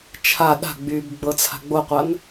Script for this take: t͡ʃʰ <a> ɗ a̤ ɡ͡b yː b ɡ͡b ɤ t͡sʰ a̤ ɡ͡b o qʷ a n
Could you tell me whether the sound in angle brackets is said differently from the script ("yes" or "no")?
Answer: no